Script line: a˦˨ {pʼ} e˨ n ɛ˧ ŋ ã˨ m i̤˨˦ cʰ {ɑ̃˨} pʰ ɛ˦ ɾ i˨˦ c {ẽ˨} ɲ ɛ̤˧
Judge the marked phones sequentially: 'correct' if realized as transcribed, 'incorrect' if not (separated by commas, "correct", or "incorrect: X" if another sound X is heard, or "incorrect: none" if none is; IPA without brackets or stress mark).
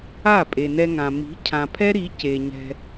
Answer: correct, incorrect: ã˨, incorrect: e˨